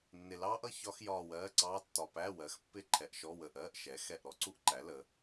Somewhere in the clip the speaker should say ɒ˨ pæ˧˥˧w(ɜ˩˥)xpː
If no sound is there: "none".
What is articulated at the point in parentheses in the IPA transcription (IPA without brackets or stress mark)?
ɜ˩˥